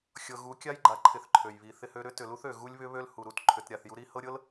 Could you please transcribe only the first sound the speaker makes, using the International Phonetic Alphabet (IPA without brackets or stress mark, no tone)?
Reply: xʲ